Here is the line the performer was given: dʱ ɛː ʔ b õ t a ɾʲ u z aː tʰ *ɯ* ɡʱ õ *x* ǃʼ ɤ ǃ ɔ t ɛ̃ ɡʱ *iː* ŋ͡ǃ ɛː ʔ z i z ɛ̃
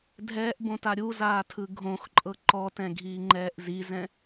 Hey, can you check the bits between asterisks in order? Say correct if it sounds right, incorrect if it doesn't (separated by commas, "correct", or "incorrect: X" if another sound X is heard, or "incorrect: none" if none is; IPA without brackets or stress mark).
correct, correct, correct